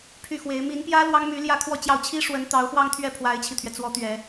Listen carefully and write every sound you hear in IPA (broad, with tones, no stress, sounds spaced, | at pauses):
pʰ y˥˩ x w e˧˥ ɪ̯ m i˧˥ n p j ä˥ l w ɑ˥ ŋ m y˧˥ l j ä˥˧ kʰ w ɔ˥˧ t͡ɕ j ɑ˥˩ ʊ̯ t͡ɕʰ i˥ ʂ w ə˧˥ n t̪ ɑ˧˥ ʊ̯ x w ɑ˥˧ ŋ t̪ʰ ɥ ɛ˥˩ pʰ w a˧˥ ɪ̯ t͡ɕʰ i˧ t̪ʰ ɥ ɛ˩ t͡s w ɔ˧˥ t̪ ɥ ɛ˨˩˦